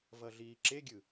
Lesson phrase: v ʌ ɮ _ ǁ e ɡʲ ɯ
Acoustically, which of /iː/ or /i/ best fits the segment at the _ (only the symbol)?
iː